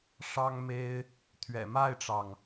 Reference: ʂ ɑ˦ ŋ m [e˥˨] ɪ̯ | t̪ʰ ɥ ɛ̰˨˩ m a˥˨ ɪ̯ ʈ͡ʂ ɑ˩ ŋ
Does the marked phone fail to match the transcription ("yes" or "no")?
yes